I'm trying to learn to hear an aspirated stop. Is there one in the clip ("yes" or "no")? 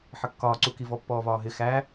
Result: no